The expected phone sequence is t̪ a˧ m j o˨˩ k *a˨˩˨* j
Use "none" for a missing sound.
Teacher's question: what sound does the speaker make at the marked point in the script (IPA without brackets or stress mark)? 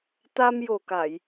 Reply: a˨˩˨